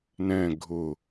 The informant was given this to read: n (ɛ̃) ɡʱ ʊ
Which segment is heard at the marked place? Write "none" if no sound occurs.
ɛ̃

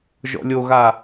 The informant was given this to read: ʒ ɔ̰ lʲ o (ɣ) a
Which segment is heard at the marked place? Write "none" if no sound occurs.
ɣ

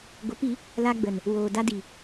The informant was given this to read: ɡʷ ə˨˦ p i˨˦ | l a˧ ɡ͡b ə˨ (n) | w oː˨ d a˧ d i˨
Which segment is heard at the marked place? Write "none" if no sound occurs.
n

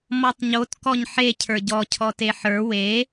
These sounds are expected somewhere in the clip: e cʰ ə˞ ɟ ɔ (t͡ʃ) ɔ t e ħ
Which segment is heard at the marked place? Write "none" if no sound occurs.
cʰ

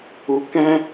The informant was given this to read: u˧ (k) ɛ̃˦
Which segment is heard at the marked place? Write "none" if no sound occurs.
k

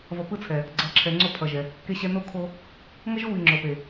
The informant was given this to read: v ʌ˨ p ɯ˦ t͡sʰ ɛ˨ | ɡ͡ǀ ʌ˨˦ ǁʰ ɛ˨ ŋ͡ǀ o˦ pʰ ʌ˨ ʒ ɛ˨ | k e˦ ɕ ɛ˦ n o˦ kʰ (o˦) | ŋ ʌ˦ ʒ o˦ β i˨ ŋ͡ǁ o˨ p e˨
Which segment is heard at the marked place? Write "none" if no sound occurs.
o˦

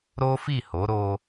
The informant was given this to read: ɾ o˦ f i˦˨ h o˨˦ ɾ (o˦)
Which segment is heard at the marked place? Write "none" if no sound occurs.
o˦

